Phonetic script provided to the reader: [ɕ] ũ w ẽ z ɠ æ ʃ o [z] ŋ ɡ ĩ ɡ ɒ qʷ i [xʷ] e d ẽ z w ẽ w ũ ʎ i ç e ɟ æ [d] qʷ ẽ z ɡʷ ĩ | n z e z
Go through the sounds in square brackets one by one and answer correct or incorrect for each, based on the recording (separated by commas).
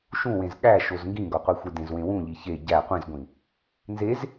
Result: incorrect, correct, correct, incorrect